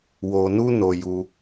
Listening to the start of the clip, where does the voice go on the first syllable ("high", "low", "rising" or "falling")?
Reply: low